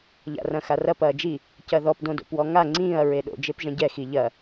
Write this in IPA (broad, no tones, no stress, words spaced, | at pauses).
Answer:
ʎa̰rɐ̃xarɐp ɐːd͡ʒi | cɐðɔp dõdo̰pwɔŋa ŋ͡ǀĩːɐ̯ ɹeɗo̰ d͡ʒepʒɐ̃ɟɛ xiʎɐ